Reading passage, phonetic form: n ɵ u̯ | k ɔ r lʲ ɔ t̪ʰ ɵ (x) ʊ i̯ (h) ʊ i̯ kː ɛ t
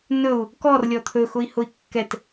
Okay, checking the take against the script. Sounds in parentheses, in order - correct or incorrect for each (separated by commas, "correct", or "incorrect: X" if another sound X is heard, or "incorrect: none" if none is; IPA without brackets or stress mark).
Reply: correct, correct